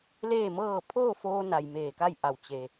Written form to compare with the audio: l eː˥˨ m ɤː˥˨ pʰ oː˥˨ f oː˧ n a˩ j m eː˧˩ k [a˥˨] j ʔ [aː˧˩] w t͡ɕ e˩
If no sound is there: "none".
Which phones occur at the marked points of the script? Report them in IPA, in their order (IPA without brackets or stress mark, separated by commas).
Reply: a˥˨, a˧˩